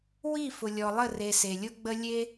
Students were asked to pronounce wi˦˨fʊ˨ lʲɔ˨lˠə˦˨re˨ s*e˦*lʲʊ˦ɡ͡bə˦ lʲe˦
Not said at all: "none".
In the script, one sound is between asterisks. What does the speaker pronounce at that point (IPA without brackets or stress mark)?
e˨